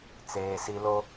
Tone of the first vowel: low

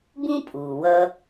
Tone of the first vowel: high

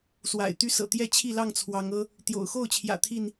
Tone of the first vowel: low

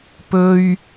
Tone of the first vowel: high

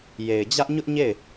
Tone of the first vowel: low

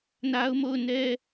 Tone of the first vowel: high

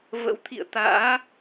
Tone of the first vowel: rising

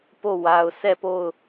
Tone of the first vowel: falling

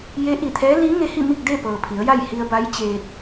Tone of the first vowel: rising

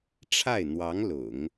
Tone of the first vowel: falling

